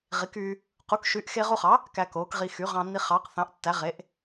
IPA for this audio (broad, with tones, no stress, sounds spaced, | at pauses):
ʁ i˩˥ k yː˧ | q u˩˥ k ʃ y˩˥ ʔ x eː˧ ʁ u˧ χ ɑ˩˥ | k æ˧ k oː˩˥ k ʁ i˧ x y˩˥ ʁ ɑ̃˧ nː i˧ χ ɑ˩˥ q θ ɑ̃˩˥ ʔ tː æ˩˥ ʁ e˩˥ ʔ